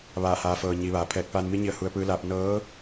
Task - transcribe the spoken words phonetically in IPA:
ʋ aː˧˩ h aː˩˧ f ɤː˩ ɲ i˩˧ ʋ aː˩˧ pʰ ɛː˧˩ k̚ p aː˧ n m i˧˥ ɲ i˧ ə̯ h u˧ ə̯ p ɯː˧˥ l aː˧ p̚ n ɤː˧˥

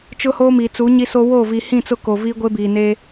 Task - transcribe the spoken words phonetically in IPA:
t͡ʃ ʊ˦ h oː˦ m i˨ t͡s u˨˦ ɲ i˦ s o˦ w o˦˨ v i˨ h ĩ˦˨ t͡s ʊ˦ k o˨ v iː˦ ɡʷ e˦ b iː˨ n e˦

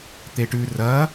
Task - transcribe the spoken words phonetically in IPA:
t̪ e ʈ ʉ r ɐ

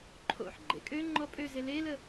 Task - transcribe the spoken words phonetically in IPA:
ǃʰ o̰ ħ ɡ͡ǃ ḛ kʼ ø ŋ͡ǃ ɔ pʼ ø z e l e l ə

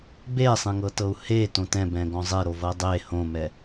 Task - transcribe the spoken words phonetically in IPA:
b e sˤ ẽ ŋ ɤ t ɤ u̯ h e t õ t ɛ̃ b ɛ̃ ɡ ɔ̃ zˤ e ɾ o v ɤ dˤ e h õ m ɛ

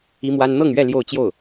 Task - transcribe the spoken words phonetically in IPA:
i˥ m w a˥ n n̪ ɤ˥˧ ŋ ɥ ɛ˥˧ l j o˥˧ ʊ̯ t͡ɕ j o˥˩ ʊ̯

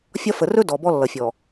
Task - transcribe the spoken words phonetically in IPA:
fʲ ɒ˦ f ə˨ r ɵ˦ d ɔ˨ b ɔ˦ lː ʌ˨ fʲ ɔ˨

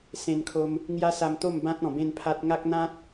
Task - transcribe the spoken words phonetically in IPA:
s ẽ˧ n kʰ o˧ m | ŋ j a˦ s a˧ m t̪ o˥˧ m b ã˦ t̚ ɔ̃˨˩ b ẽ˥˧ n pʰ a˦ t̚ ŋ a˦ k̚ n̪ ã˦ t̚

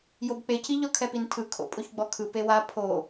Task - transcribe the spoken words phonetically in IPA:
j o b k͡p e c i ʎ ɔ kʰ ɛ p i n tʰ ɯ kʰ o̰ pʼ o ç ɡ͡b ɔ kʰ ɯ p e w a pʰ o

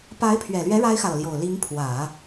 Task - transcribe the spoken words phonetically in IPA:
p a˧˥ ɪ̯ pʰ ɥ ɛ˨˩ l ɥ ɛ˧˥ ɻ a˥ ɪ̯ x ä˨ ɤ˩ l j o˨˩ ʊ̯ l i˧˥ ŋ pʰ w ä˨˩˦

